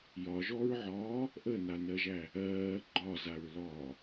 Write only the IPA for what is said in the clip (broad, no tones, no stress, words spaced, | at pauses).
jɒʒɔɹʕɒː | ʔənanɜʒæ | ɜː ɡ͡ǃɒzaɹlɒː